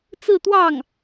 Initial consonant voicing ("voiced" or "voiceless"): voiceless